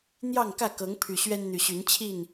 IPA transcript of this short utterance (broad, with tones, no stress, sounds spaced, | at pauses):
n̪ j ɑ˥˨ ŋ k ä˥˨ k ɤ˨˦ ŋ pʰ y˨˩ ɕ ɥ ɛ˦ n n̪ y˨˩ ɕ y˨˦ n t͡ɕʰ i˥˨ n